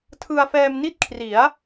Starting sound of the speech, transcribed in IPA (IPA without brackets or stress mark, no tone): tʰ